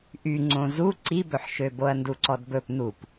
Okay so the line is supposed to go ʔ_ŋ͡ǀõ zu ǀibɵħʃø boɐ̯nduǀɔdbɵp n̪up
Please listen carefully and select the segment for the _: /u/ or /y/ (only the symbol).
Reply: y